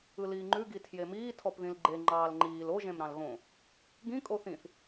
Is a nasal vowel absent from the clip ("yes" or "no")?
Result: no